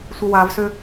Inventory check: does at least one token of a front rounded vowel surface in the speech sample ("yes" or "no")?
yes